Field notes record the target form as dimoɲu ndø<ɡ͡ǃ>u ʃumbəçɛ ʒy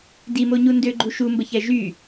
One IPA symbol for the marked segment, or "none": ɡ͡ǃ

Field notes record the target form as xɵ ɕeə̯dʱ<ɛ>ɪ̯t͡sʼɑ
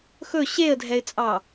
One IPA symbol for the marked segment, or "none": ɛ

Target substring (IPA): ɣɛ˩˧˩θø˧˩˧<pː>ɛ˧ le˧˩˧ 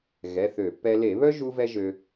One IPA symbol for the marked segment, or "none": pː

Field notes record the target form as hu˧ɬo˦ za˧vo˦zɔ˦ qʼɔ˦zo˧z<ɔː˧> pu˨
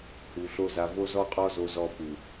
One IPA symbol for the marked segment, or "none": ɔ˧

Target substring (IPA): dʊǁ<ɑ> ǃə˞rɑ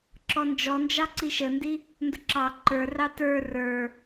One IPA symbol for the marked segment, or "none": ɑ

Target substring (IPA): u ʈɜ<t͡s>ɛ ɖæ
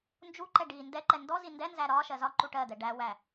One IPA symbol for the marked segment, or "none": d̪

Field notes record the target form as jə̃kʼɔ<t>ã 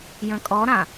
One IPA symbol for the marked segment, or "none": ɾ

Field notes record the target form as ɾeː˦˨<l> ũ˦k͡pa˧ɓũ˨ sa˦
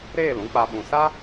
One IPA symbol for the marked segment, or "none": l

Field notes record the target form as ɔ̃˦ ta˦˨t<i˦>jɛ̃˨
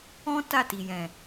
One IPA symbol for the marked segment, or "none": i˨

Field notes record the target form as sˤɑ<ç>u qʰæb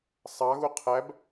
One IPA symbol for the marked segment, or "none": ɣ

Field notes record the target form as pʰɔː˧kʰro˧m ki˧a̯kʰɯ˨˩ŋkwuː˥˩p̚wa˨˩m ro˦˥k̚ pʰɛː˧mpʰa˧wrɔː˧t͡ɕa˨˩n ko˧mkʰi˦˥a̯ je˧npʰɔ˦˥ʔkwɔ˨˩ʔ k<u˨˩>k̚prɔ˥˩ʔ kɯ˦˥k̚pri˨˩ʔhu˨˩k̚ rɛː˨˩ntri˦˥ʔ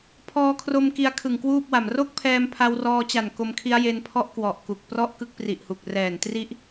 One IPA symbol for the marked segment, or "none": u˨˩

